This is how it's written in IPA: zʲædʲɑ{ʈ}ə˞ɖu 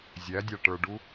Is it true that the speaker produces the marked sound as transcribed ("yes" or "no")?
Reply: yes